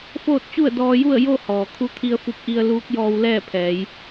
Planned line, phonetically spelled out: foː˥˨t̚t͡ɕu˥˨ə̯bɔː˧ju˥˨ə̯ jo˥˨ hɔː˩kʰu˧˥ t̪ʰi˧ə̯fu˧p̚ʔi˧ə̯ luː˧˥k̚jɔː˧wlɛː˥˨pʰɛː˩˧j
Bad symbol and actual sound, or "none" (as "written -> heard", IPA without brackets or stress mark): b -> d